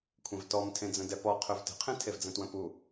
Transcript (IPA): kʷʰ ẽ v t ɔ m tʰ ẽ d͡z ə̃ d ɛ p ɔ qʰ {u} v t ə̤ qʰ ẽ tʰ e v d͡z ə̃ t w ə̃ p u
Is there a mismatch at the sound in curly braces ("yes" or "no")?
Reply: yes